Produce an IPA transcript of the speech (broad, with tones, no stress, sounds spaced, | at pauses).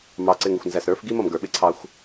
m ɑ˨ ǀ ɪ˨ ŋ ɪ˨ xʷ n z æ˨ s ɾ ə˞˨˦ f ɡ i˦ m ʌ˨ m ɡ ə˞˨ ɓ ɪ˦ ǀʰ ɑ˦ xʷ